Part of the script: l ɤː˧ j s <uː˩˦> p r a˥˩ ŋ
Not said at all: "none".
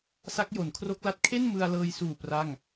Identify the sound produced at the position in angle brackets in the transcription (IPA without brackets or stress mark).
uː˨˩